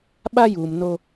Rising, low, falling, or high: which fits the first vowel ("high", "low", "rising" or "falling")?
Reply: high